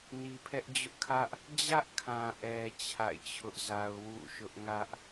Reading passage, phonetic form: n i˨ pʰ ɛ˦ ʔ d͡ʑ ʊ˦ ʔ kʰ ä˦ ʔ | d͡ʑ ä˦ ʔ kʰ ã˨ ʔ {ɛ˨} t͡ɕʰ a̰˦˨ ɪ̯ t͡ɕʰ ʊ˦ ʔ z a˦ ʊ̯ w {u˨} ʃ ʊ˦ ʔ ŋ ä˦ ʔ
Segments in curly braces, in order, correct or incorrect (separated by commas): correct, incorrect